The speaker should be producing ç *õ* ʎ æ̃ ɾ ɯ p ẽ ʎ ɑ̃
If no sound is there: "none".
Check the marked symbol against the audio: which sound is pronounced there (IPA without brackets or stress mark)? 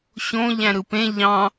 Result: õ